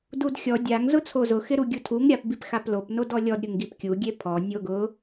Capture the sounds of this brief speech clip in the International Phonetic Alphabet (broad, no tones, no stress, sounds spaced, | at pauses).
d u d xʲ ɔ dʲ a ŋ z ʊ t͡sʰ o z ʊ x ɪ ɾ u ɡʲ u tʰ u ŋ ɾʲ a p b i p x a p l o p n o d ɔ lʲ ɔ d ɾʲ ʊ ŋ ɡ i p kʲ u ɡʲ e pʰ ɔ nʲ o ɡ ʊ